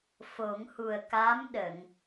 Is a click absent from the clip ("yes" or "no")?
yes